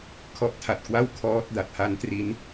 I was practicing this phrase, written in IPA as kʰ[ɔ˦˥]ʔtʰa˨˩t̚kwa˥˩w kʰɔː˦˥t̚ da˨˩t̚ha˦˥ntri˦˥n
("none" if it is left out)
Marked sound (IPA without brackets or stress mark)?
ɔ˦˥